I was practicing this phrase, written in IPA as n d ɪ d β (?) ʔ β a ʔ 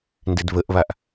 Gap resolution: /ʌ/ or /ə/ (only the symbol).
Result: ə